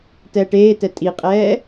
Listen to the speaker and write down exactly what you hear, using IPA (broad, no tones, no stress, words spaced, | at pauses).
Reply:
tɛːʈeːtɛ tʼiqʼɛː